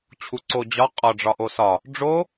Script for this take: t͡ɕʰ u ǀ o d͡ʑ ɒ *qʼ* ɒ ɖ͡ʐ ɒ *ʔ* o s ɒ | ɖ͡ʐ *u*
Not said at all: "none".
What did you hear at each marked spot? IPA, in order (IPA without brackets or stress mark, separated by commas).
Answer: qʼ, ʔ, o